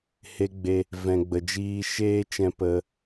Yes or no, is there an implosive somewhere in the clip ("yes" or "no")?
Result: no